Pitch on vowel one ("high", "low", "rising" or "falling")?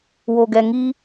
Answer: low